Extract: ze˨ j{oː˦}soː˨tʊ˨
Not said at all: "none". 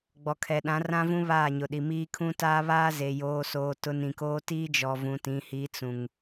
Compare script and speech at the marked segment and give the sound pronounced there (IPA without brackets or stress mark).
oː˨